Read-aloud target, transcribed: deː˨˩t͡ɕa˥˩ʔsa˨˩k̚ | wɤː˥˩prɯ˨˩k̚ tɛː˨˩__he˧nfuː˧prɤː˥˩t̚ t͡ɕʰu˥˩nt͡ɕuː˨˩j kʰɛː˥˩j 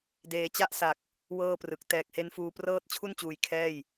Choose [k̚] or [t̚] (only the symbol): k̚